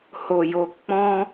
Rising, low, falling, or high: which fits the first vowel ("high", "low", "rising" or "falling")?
low